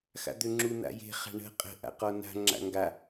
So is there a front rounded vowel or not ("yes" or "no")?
yes